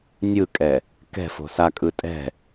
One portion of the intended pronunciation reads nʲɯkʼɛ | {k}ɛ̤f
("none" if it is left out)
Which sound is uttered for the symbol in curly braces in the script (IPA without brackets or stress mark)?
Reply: k